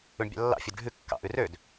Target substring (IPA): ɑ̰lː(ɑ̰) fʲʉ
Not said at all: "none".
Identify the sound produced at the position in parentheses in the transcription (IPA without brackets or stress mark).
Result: ɑ̰